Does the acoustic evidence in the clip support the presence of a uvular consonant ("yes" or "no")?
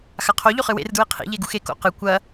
yes